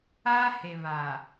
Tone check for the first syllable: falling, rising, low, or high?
high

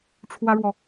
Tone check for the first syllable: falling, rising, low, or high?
high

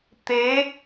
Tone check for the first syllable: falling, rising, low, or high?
rising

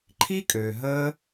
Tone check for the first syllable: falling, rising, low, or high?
high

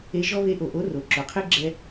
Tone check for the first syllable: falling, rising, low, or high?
rising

